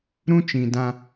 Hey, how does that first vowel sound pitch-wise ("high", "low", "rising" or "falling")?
high